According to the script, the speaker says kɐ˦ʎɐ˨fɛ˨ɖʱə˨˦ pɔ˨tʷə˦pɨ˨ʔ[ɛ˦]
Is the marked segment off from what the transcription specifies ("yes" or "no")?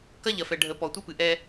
no